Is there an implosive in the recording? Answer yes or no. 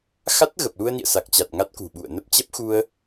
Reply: yes